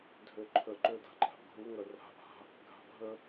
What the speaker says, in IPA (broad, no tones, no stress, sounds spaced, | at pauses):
dʱ ø ǃʰ ə ǃ ø d a̤ ǃʼ a̤ ʔ ɡʱ u ŋ œ r a̤ ʔ a̤ | ɡʱ a̤ bʱ ə